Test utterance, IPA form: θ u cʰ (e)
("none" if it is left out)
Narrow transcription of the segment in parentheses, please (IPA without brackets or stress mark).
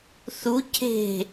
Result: e̤